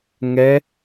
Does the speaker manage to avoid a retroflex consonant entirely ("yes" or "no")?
yes